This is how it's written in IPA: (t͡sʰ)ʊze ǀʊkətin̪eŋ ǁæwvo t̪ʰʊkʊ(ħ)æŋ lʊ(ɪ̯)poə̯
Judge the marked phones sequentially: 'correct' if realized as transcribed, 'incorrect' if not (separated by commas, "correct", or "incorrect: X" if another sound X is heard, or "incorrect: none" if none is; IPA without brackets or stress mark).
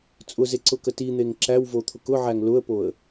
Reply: incorrect: t͡sʼ, incorrect: ʕ, incorrect: ə̯